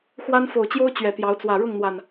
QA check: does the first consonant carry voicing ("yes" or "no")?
no